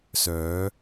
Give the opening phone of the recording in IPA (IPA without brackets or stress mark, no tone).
s